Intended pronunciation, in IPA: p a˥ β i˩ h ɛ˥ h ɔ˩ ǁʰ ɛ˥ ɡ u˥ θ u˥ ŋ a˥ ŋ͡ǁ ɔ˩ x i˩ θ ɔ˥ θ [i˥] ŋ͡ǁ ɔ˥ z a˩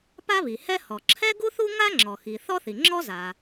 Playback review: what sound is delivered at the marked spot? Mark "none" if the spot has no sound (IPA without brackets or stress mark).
i˩